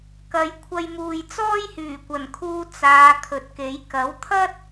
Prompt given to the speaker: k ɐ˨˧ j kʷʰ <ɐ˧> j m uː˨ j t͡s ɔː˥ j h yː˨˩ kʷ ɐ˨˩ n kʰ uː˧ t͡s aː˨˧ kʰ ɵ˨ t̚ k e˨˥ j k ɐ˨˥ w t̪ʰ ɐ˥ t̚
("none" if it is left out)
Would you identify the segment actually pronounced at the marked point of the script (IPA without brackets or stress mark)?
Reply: ɐ˧